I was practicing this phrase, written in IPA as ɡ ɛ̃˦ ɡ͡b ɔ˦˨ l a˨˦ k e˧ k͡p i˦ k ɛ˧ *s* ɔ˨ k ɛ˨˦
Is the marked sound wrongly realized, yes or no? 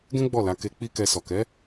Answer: no